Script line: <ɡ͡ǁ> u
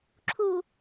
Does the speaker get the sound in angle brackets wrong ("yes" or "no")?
yes